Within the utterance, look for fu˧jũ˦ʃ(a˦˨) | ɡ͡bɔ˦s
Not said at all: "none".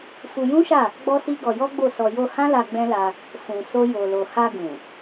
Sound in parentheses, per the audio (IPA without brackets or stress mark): a˦˨